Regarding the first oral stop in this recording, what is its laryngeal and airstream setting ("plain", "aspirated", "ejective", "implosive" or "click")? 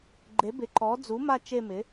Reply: click